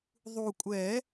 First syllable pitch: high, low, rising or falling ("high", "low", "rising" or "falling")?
low